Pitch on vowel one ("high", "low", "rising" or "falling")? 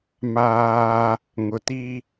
high